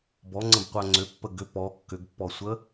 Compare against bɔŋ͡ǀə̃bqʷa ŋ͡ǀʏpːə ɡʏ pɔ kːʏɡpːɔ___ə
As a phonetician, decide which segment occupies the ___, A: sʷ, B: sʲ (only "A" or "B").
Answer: A